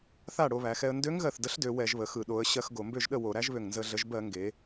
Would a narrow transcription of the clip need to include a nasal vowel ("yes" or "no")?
no